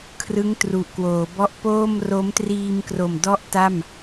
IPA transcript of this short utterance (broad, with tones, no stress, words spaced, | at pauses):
kʰrɯ˦˥ŋtru˨˩ʔkwoː˩˦bɔ˦˥ʔ poː˥˩m ro˦˥mtriː˧mkro˨˩m dɔ˥˩ʔta˥˩m